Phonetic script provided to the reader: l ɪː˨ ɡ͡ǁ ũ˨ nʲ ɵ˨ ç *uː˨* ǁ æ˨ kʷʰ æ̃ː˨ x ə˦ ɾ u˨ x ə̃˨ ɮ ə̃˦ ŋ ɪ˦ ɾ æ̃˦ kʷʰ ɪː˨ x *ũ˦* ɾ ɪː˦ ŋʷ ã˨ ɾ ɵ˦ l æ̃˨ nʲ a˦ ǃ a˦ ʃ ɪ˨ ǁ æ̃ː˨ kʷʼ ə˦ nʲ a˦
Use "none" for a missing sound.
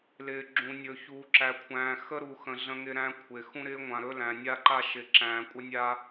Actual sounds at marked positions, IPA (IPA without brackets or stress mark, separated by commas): uː˨, ũ˦